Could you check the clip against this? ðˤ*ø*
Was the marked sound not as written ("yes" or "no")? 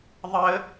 yes